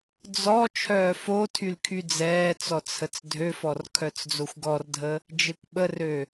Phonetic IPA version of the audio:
d͡z ɔ t͡ʃʰ œː f o tʰ y l kʰ y d͡z ɛː t͡s ɔ t͡sʰ ə t͡s dʱ ø f ɔ r kʰ œ t͡s d͡z o xʷ ɡ ɔ r dʱ ə | d͡ʒ e kʷ ɓ ə r ø

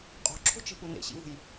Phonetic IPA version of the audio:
qʼ o̤ ǁʰ o̤ t͡ʃ e̤ p u n ḛ ɕ ḭ v ṳ j

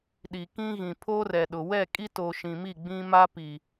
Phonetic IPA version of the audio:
ɗ i˨ k ĩ˦ ɣ ĩ˨ pʰ o˦ r ɛ˨ ɗ ʊ˨ w ɛ˦˨ kʼ i˦ t o˨ ʃ ĩ˨ m i˦˨ ɡ͡b ĩ˦ m a˦ p i˨

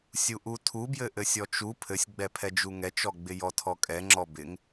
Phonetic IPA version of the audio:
sʲ u ʔ u tʰ u b j ɘ ʔ ɘ sʲ ɔ t͡ʃ u pʰ ɘ sʲ ɡ͡b ɛ pʰ ɛ d͡ʒ u ŋ ɛ t͡ʃ ɔ ɡ͡b ɪ j ɔ tʰ ɔ kʼ ɛ ŋ͡ǁ ɔ b ɪ ŋ

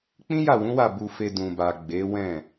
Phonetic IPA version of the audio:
k͡p ĩ˦ j a˦˨ w ũ˨˦ w a˦˨ b u˧ f e˧ d ũ˨ b a˨ ɡ͡b e˨˦ w ɛ̃˦˨

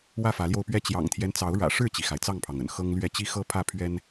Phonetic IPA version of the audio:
w ä˥˨ f ä˨˦ l j o˧ ʊ̯ p ɥ ɛ˦ t͡ɕ j ɑ̰˨˩ ŋ t̪ʰ j ɛ˦ n t͡s ɑ˨˦ ʊ̯ ɻ ä̰˨˩ ʂ ɻ̩˥˨ t͡ɕ i˩ x a˩ ɪ̯ t͡s ɑ˥˨ ŋ pʰ ɑ˩ ŋ ə̰˨˩ n x ɤ˦ ŋ l ɥ ɛ˥˨ t͡ɕ i˦ x ɤ˦ pʰ ä˥˨ pʰ ɥ ɛ˦ n

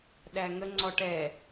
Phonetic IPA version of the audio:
ɗ æ ŋ ə ŋ͡ǀ ɔ ʈ ɛ

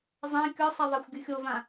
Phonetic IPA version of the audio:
zˤ ã kʲ ɔ sˤ ɛ ðˤ a xʷ ɡʲ ɯ xʲ o v ã

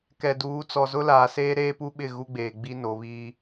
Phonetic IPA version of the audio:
k ɛ˨ d uː˨˦ t͡s ɔ˨ z ʊ˦ l aː˨ s eː˦ ɾ eː˦ p u˦ ɓ ɪ˦˨ ɣ u˦ ɡ͡b eː˨ ɡ͡b i˦ n o˨˦ β iː˦

